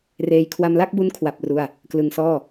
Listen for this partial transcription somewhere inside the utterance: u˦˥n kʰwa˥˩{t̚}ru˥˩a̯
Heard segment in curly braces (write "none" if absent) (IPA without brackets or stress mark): p̚